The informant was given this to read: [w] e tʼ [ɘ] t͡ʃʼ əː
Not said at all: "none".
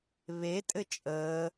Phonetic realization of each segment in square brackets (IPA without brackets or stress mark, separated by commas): β, ɘ